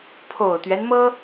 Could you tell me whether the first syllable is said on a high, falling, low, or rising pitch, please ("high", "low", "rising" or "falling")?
low